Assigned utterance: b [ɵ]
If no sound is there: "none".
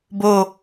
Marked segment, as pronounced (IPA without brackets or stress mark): o